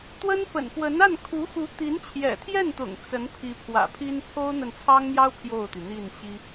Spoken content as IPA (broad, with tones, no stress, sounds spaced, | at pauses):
t̪ w ə˥ n p ə̰˨˩ n p w ə˧˥ n a˥˩ n kʰ u˧˥ x u˧˥ t̪ i˧˥ n t͡ɕʰ j ɛ̰˨˩ t̪ʰ j ɛ˥˩ n t̪ ʊ̰˨˩ ŋ t͡s ə˧˥ n pʰ i˧˥ pʰ w ä̰˨˩ pʰ i˥ n pʰ o˥ ʊ̯ n̪ ə˨ n t͡sʰ ɑ˥ ŋ n̪ j ɑ˥ ʊ̯ pʰ j o˥˩ ʊ̯ t̪ y˩ n̪ i˥˩ n ɕ i˥